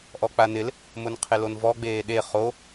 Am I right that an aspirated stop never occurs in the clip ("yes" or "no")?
no